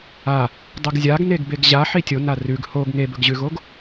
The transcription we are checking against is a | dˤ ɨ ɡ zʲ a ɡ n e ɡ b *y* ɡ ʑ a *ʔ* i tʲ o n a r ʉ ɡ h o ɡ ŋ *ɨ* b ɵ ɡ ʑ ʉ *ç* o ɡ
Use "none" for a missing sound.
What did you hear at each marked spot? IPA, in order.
e, ħ, e, ɣ

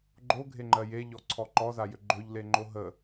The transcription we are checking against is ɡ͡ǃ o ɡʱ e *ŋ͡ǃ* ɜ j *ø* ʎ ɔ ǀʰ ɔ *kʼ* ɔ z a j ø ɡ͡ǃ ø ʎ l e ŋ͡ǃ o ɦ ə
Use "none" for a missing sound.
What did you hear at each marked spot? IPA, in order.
ŋ͡ǃ, e, ǃ

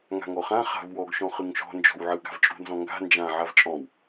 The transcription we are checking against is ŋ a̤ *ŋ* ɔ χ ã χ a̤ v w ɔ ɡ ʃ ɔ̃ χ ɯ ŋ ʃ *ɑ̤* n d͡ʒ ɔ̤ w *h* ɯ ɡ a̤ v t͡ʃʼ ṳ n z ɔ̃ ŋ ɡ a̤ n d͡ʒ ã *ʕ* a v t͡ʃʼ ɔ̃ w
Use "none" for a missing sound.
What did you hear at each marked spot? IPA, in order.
ŋ, ɔ̤, ʕ, ʕ

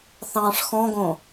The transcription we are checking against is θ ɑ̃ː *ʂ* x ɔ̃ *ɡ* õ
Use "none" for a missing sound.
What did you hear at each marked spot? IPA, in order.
ʂ, ɡ

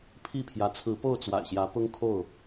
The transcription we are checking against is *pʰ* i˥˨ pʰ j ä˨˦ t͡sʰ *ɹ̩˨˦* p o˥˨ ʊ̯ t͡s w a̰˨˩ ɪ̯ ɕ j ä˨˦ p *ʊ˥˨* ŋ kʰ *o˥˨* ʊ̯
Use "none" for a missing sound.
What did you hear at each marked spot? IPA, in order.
pʰ, ɹ̩˨˦, ʊ˦, o˥˨

